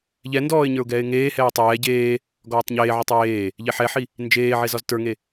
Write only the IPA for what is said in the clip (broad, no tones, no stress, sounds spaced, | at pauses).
ʎ ɛ n d ɔː ɪ̯ ɲ ə˞ ʊ̯ ɡ ɛː ɪ̯ ŋ eː h ɛː tˤ ɛː ɟ eː | ɡ ɔː tˤ ɲ eː ʕ ɔ tˤ j eː | ʎ e ħ ɛ ħ i | n d͡ʒ eː ʕ e z ɒ z t ə˞ ŋ e